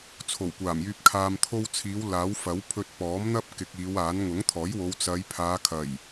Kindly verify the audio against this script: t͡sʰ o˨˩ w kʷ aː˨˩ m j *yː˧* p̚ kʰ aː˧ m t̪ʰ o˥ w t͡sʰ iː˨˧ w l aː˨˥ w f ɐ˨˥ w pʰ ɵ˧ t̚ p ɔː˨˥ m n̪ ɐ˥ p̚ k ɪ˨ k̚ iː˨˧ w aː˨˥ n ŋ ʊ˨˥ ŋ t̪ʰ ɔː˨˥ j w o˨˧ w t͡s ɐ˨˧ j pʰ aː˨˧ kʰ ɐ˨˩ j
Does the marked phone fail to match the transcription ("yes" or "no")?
no